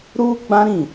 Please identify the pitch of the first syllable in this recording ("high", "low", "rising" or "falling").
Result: high